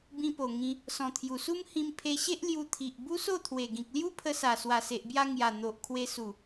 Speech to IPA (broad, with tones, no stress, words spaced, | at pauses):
bĩ˧po˨˩ŋĩ˧ | sɔ̃˨˩t̪ʰju˨˩su˦m hĩ˧mpʰe˧ɕe˦ʔ lju˧t̪ʰi˨ʔ bu˦so˥˧t̪ʰwe˨˩ ɡĩ˨k̚lju˦pʰə˧sa˨˩ swa˨˩se˨ʔbja˧ ŋja˨˩ n̪o˨ʔkʰwe˧su˨˩